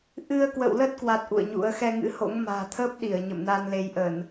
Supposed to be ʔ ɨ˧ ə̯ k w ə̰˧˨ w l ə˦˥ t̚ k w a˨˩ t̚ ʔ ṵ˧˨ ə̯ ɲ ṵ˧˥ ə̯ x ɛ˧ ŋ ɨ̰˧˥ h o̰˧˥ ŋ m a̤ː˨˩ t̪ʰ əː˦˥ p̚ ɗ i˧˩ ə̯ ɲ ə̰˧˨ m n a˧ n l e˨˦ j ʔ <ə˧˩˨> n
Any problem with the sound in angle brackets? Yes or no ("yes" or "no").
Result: no